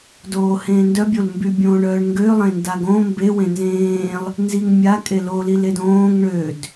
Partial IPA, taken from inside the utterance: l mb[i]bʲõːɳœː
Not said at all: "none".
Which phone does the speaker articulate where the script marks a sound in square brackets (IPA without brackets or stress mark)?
y